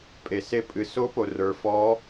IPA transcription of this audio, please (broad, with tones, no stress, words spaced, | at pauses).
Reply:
pʼe˩se˧˥ pʼɨ˩so˧˥po˩ rə˞˩fɔ˧˥